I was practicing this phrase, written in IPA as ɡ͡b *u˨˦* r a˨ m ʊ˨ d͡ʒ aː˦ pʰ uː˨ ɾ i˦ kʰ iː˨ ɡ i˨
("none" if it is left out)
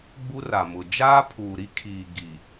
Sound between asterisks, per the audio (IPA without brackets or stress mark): u˦